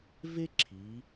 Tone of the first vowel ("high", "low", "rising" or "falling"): high